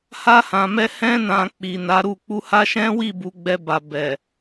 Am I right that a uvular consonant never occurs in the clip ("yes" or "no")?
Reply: yes